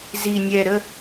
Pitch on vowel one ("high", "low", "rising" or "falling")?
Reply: low